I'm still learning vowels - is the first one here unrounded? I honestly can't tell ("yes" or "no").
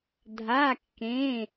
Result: yes